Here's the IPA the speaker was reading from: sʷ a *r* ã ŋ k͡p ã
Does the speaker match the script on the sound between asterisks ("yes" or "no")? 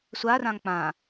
yes